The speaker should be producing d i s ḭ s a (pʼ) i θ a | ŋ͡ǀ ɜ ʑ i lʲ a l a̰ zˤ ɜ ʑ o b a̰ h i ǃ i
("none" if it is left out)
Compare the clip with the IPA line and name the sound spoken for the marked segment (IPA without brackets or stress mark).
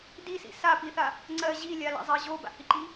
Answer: p